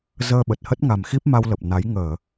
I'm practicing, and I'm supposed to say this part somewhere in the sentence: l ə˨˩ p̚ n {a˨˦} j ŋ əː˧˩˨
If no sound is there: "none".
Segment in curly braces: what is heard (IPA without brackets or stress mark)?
a˨˦